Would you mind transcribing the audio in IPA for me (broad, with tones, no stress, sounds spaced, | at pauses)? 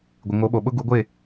ɡʷ ɪ˨ ŋ o˨˦ ɓ o˨ ɓ ʊ˦ ɡ u˨˦ ɡʷ ɪ˦˨